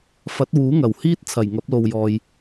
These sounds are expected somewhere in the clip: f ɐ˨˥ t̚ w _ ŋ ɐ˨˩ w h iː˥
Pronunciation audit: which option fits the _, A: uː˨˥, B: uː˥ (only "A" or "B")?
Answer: A